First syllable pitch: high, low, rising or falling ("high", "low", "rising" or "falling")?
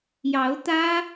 rising